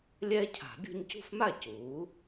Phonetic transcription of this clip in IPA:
lʲ ɛː˦ cʰ a̤˨˩˦ bʲ o̤˦ ɲ c ṳ˥˩ f m a˥˩ c uː˩˥

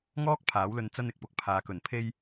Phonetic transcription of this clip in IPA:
ŋ ɔː˥ k̚ pʰ aː˨˥ w l ɵ˧ n t͡s ɐ˧ n ɪ˨ k̚ p ʊ˨ k̚ pʰ aː˨ k ɵ˨˩ n pʰ e˧ j

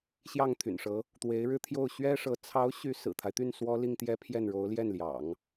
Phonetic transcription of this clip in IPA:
ɕ j ɑ˥˩ ŋ t̪ʰ y̰˨˩ n ʂ ɤ˧˥ | t̪ w e˧˥ ɪ̯ ɻ ɻ̩˥˧ t̪ʰ j o˥˩ ʊ̯ ɕ ɥ ɛ˥ ʂ ɤ˧˥ t͡sʰ ɑ˧˥ ʊ̯ ɕ y˧˥ s ɹ̩˨˩ t̪ʰ a˦ ɪ̯ t̪ y˥˩ n s w ɔ˥ l i˥˧ ŋ t̪ j ɛ˥˧ pʰ j ɛ˥˩ n ɻ o˧˥ ʊ̯ l j ɛ˥˩ n l j ɑ̰˨˩˦ ŋ

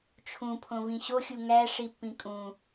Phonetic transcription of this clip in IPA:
t͡ʃʰ ũ pʰ õ v ĩ ɕ o xʲ u ŋ æ ʂ i pː ĩ kʼ ũ

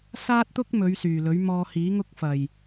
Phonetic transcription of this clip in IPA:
s aː˥ t̚ t̪ ʊ˥ k̚ m ɵ˨˧ ɥ s yː˨˩ l ɵ˨˥ ɥ m ɔː˧ h iː˨˥ ŋ ʊ˥ k̚ f ɐ˨˩ j

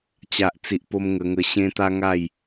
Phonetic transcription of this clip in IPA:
t͡ɕ a˨ ʔ t͡s i˨ ʔ p o˧ m ŋ ə˧ ŋ ə˧ ɕ ẽ˦ t̪ a˦ ŋ a˥˧ j

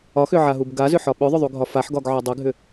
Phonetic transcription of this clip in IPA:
ɒ x ʏ ʕ a ɦ u b ɡ a z ʏ ħ ɒ ɓ ʏ ðˤ ʏ ðˤ u ɡʱ ɒ f a ħ ɡ ɒ ɡ ʕ ɒ dˤ ɘ ɡʱ ʏ

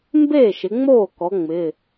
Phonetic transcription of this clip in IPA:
m b eː˥˩ ʃ ɪ˩˧ ŋ͡m oː˥˩ k ɔ˩˧ ŋ͡m ɪ˩˧˩

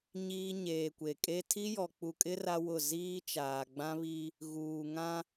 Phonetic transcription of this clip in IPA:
ɲ iː˦ ɲ eː˨ kʷ e˨ kʼ e˦ tʰ i˦ j ɔ˨ k͡p u˨ kʼ ɪ˦ r a˦ w ʊ˦˨ z iː˦ t͡ʃ aː˨ ɡ͡b ã˦ β i˦ | ɣ uː˨ ŋ ã˦

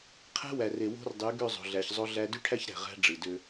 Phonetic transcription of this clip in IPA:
qʰ æ̤˦ w æ˨ r e˨ w o̤˦ r dˤ y˨˦ ɡ ø˦˨ zˤ o̤˨ ɮ æ˨ ç zˤ o˦ ɮ æ˦ d y˦ ʈʰ æ˦ ç ɾ æ̤˨ ʁ æ̤˦ ɖ͡ʐ ɯ˨ d ø˦

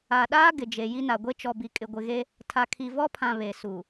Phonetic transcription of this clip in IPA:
a˨ ɗ aː˦ ɡ ɪ˨ d͡ʒ e˨ j i˦ n a˨ ɡʷ e˦ t͡ʃ ɔ˨ b i˨ kʼ ɪ˨ ɡʷ ɪ˨ ɣ e˦ | tʰ a˨ kʰ i˨ v ɔ˦ pʰ ã˨ β e˨ s u˨

